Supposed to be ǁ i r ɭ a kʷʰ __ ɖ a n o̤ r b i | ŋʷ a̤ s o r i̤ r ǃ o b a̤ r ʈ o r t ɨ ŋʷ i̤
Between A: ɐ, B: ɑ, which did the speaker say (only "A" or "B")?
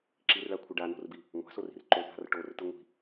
A